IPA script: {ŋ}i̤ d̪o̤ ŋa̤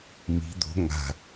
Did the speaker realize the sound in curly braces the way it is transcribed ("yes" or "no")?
no